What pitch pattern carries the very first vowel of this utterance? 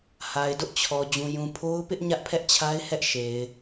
low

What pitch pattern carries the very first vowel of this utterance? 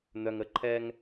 low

